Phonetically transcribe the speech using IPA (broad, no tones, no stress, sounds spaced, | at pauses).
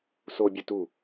s o bʲ ɵ t u